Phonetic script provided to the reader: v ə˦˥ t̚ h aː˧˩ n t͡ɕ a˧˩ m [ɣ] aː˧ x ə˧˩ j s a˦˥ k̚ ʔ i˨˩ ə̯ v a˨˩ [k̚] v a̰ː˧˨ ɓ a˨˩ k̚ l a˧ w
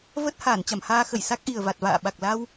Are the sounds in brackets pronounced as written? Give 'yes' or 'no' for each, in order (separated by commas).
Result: no, no